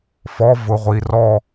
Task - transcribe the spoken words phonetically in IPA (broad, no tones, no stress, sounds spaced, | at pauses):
f ɔ v ʊ ʁʷ i r ɔ